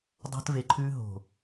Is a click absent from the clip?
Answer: no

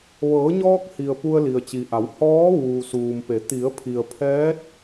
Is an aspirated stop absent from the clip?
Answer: no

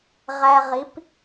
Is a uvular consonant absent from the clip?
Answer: no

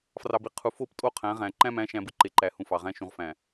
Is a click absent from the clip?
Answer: no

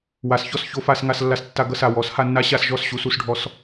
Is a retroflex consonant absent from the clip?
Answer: no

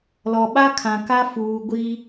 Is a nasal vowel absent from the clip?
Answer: no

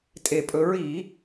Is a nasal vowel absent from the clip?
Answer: yes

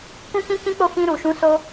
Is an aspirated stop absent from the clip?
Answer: yes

